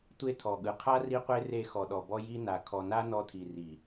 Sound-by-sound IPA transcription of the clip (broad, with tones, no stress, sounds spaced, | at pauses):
tʷ e˦ tʰ ɔ˨ ɠ ɯ˨ qʰ a˦ r i˦ qʷ e˦ r e˦˨ x ɔ˨ ɗ ɔ˨ b ɔ˦ j i˦ n a˨ kʰ ɔ˨ n a˦ n ɔ˦ tʰ i˨ r i˨